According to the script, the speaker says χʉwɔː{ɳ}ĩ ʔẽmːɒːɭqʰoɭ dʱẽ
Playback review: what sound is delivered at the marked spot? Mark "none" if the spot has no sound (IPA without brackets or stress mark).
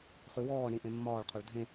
ɳ